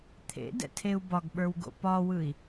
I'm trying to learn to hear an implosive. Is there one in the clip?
yes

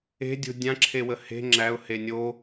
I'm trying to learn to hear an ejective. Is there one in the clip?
no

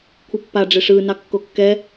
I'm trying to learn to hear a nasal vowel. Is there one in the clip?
no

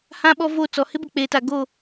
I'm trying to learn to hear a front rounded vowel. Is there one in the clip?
no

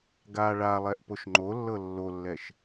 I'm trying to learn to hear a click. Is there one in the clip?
yes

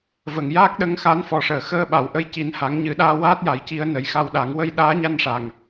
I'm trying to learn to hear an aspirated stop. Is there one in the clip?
no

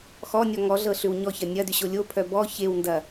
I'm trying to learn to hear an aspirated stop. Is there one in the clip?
yes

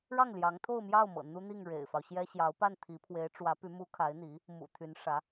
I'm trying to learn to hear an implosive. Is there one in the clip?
no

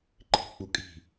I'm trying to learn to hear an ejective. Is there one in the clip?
yes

